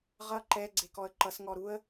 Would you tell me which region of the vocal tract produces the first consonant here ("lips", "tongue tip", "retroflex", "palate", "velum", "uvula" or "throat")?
uvula